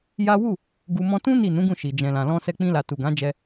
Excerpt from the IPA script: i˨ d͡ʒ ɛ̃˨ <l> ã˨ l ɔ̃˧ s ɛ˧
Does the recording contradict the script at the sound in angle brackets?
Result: no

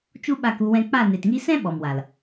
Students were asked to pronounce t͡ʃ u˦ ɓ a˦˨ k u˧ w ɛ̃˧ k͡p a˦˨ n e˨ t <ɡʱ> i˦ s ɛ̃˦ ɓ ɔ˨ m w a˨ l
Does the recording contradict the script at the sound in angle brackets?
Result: yes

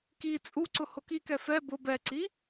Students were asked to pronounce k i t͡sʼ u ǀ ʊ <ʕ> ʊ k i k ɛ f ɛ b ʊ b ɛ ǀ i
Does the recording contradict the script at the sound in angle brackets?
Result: yes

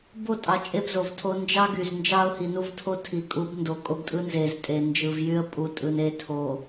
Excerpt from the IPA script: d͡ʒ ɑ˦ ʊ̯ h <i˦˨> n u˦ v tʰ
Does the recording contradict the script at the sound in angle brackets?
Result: yes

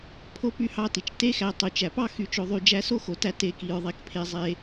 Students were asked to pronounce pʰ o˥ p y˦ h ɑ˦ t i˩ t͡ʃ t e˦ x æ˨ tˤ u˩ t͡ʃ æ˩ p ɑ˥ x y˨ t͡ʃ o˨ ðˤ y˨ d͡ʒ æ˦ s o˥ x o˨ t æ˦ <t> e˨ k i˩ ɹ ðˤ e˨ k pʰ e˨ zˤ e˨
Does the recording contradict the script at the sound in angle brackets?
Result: no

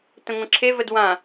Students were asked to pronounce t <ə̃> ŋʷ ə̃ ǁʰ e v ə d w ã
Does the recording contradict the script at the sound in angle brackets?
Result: no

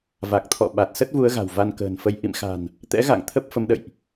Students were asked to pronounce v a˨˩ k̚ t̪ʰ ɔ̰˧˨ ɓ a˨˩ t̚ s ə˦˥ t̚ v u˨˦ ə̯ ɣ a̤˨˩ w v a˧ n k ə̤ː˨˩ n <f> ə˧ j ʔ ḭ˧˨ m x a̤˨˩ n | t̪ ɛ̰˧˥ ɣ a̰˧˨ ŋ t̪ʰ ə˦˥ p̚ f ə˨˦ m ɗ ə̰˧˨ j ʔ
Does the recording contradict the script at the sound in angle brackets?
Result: no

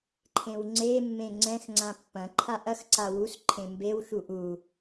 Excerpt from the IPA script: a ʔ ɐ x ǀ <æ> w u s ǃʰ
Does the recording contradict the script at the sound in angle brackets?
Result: yes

